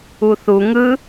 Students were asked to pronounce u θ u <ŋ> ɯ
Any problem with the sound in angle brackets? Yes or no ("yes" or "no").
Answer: no